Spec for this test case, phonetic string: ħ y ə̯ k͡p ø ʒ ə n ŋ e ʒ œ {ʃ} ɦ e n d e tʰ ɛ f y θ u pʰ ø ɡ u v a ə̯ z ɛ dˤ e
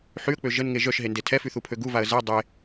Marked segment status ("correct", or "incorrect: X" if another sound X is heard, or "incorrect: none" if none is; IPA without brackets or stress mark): correct